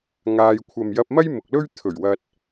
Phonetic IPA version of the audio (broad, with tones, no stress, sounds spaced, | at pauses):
ŋ aː˧ j kʷʰ ɐ˨ m j ɐ˧ p̚ m ɐ˥ j m ʊ˨ k̚ l ɵ˥ ɥ t̪ʰ ɵ˨˩ ɥ w ɐ˧ t̚